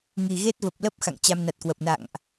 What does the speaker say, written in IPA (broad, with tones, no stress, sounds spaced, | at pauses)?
ŋ i˨˩ ɣ e˦˥ t̚ v ə˨˩ p̚ l ə˦˥ p̚ x a̰˧˨ ŋ t͡ɕ a˧ m n a˨˩ t̚ k w ə˨˩ p̚ n a̰˧˨ ŋ ʔ